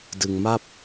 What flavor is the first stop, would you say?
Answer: plain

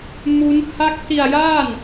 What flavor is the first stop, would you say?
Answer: plain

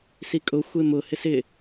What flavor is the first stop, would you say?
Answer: ejective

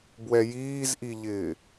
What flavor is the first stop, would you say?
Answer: plain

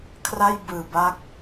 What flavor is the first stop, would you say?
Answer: aspirated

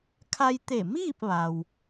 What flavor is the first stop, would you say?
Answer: aspirated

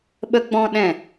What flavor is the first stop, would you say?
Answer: implosive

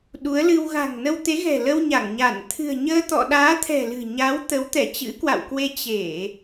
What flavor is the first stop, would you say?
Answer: implosive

